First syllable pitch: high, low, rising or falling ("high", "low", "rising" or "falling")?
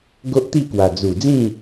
high